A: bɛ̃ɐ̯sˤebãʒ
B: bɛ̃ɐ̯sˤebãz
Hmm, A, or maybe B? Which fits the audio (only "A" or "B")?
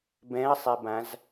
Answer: B